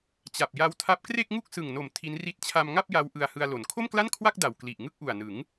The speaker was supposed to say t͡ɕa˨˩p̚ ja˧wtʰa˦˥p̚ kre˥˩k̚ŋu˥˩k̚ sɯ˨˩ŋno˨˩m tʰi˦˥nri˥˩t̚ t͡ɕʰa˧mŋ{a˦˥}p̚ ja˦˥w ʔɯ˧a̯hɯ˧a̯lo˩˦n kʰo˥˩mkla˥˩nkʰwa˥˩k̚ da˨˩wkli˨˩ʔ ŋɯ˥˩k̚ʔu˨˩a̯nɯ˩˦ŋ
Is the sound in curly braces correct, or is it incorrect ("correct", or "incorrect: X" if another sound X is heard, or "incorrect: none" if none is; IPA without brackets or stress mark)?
incorrect: a˥˩